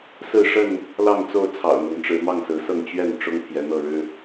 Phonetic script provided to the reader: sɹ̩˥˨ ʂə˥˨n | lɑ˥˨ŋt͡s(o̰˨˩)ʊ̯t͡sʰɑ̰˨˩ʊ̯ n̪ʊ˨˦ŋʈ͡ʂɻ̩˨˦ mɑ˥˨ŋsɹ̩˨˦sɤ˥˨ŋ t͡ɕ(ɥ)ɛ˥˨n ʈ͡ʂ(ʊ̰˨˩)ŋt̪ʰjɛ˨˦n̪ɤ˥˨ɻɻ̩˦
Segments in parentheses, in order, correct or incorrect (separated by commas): incorrect, correct, incorrect